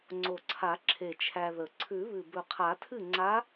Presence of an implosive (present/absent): absent